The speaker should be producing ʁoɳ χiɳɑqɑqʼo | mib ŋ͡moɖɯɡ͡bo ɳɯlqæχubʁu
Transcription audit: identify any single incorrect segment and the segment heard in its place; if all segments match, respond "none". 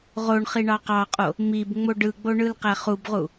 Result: none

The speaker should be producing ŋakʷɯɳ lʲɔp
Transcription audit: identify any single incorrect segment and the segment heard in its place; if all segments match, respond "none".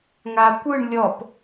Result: none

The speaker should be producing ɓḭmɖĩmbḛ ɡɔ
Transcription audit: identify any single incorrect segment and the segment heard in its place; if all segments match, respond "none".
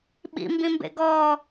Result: ɖ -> b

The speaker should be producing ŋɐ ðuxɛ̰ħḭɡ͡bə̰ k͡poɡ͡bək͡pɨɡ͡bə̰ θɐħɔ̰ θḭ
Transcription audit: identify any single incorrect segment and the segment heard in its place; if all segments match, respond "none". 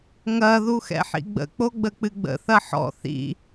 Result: none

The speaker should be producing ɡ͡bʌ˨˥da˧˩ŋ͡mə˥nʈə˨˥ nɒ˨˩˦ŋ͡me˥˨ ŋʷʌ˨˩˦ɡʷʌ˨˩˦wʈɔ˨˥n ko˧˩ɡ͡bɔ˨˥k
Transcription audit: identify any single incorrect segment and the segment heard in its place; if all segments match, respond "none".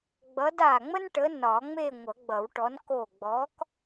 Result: ɡʷ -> ɡ͡b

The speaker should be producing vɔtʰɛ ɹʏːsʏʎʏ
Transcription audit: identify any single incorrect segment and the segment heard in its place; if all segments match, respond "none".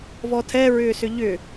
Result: none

